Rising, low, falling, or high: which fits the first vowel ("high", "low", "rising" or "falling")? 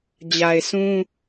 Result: low